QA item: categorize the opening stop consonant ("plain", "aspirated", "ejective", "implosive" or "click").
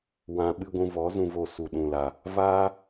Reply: implosive